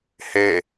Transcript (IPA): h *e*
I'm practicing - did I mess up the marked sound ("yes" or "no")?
no